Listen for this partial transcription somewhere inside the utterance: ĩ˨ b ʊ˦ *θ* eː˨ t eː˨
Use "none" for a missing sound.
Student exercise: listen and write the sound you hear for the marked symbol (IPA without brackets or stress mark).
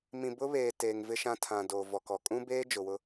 β